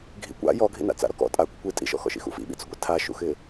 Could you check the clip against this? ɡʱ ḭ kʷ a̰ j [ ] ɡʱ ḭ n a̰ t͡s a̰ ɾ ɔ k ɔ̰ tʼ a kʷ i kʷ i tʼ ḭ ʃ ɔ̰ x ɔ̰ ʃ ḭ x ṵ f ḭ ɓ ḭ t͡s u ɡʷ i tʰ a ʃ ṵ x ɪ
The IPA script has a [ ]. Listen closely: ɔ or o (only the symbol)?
ɔ